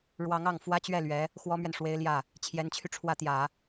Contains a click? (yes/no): no